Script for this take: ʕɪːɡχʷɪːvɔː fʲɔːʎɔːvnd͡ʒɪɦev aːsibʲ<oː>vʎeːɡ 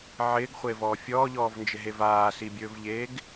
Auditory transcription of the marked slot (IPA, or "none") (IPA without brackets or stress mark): ɵː